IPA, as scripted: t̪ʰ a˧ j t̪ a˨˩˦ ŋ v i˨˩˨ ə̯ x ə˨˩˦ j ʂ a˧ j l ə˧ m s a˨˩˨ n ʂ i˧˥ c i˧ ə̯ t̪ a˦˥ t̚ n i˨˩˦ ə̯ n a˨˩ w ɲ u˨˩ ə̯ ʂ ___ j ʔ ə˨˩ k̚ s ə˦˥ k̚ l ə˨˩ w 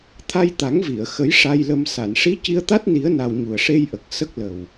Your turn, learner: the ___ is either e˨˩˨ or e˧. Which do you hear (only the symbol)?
e˧